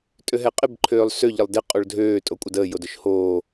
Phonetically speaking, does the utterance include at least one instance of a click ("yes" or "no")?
yes